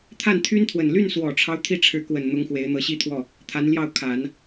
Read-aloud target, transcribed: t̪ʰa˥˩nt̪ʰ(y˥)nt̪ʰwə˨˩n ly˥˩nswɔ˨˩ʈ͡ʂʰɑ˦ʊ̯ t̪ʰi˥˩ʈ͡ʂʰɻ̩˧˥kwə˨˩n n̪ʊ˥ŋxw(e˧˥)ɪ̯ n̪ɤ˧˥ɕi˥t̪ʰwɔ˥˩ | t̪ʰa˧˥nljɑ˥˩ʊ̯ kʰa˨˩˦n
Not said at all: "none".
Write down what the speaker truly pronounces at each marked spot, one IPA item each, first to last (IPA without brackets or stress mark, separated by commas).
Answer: y˥, e˧˥